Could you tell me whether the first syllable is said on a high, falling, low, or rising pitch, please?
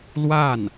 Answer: falling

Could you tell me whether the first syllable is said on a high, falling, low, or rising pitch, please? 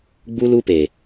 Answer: high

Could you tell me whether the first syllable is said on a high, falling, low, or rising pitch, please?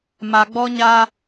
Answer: low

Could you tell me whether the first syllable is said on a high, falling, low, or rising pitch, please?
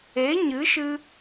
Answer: rising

